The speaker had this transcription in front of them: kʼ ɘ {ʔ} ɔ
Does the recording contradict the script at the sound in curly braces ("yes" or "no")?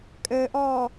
no